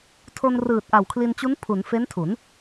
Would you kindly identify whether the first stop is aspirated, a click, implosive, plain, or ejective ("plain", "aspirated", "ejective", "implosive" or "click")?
aspirated